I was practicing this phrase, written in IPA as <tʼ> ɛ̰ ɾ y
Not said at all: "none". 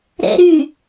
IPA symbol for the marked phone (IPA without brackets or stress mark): ɾ